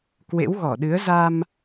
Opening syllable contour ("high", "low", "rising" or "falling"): rising